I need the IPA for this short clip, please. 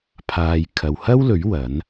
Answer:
pʰaː˨jkʰɐ˨whɐ˥wlɵ˨˥ɥ wɐ˨˥n

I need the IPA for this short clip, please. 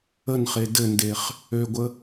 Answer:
ənχe dɘndeχ | øɡʷə

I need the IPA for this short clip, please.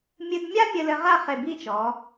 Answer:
mʲɨ˧dmʲa˥ mʲɘ˧lɘ˧ʁa˥˧ χe˧˩bi˥˧t͡ʃɔ˩˧

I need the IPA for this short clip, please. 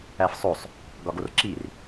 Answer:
æfsˤosˤ | ɡɒɡorǁir

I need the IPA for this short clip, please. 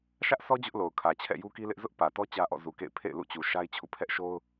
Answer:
ʃä˦ʔsɔ˦ d͡ʑʊ˦ʔlo˨ʊ̯kʰä˨t͡ɕʰɛ̰˦˨ ju˦ki˦lɪ˦ʔ zʊ˦ʔ pä˨tɔ˦ t͡ɕä˦ʔɔ̰˦˨ zu˨ kḛ˦˨ɪ̯ pʰḛ˦˨ɪ̯lṵ˦˨t͡ɕu˨ ʃa˦ɪ̯t͡ɕʰṵ˦˨pʰɛ˦ʔʃo˦ʊ̯

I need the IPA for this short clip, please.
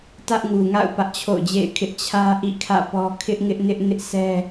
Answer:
tä˦ʔŋu˨ŋa̰˦˨ʊ̯ pä˦ʔt͡ɕʰo̰˦˨ʊ̯d͡ʑḛ˦˨ɪ̯kʰɪ˦ʔ t͡ɕʰä˦ ʔḭ˦˨kʰä̰˦˨pɔ˦ kʰɪ˦ʔŋɪ˦ʔnɪ˦ʔ nɪ˦ʔsɛ˦

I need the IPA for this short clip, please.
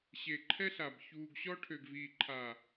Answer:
ɕe˨ǃʰɛ˦ɬa˨b çuː˨ɡɕɔ˦ ʈʰø˨ɡviː˨ǃʰa˨

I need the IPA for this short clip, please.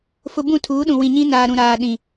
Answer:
fʊ˦ bũ˦˨tʰuː˨˦ɗũ˨wĩ˨ ɲĩ˦naː˨ɾũ˨ɾaː˨ ɗĩ˨

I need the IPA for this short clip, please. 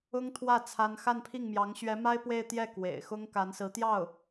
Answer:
ʊ˥ŋt̪ʰwä˥˩ t͡sʰa˥n xa˥˧npʰi˥˩ŋmjɑ˧˥ŋ ɕɥɛ˧˥ma˥ɪ̯ pwe˥˧ɪ̯t̪jɛ˥˩ kwḛ˨˩ɪ̯ xʊ˥ŋka˧˥nsɹ̩˧˥t̪jɑ˥˩ʊ̯

